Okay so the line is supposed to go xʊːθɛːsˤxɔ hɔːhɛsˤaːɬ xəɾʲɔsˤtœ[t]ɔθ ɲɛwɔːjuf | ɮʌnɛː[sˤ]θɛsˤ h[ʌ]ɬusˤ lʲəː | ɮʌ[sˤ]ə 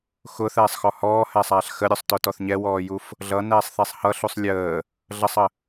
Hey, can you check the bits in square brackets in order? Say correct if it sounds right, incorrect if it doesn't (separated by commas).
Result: correct, correct, correct, correct